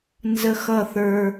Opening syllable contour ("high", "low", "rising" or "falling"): high